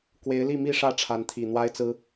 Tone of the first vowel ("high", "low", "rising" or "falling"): rising